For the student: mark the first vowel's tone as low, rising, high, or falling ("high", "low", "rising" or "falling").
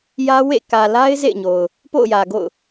high